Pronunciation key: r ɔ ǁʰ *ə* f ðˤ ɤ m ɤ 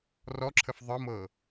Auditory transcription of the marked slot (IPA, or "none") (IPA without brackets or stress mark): ə